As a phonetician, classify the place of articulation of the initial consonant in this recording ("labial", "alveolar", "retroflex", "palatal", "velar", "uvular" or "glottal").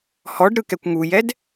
glottal